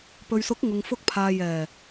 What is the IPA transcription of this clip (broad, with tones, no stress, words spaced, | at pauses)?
pɵ˨ɥsʊ˨˥k̚ ŋʊ˨ŋfʊ˧k̚pʰaː˨ jɛː˨˩